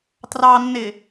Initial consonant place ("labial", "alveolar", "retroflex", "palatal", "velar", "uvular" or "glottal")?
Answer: alveolar